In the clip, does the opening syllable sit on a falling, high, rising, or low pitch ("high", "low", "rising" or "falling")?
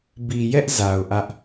low